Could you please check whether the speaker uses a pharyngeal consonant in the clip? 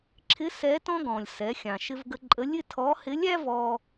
no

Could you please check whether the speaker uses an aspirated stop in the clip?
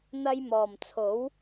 yes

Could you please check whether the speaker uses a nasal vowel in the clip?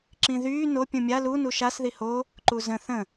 yes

